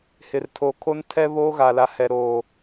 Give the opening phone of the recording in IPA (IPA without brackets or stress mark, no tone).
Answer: h